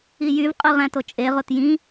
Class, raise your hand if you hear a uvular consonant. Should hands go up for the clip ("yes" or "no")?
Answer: yes